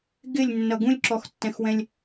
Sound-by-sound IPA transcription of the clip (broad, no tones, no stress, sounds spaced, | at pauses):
ɡ ɪ lʲ nː ʌ ɡ ũ lʲ ǁ ɔ x tː ɛ̃ x w ɛ̃ lʲ